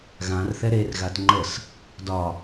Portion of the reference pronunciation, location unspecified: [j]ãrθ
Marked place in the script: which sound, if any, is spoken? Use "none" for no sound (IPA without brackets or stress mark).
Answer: ɣ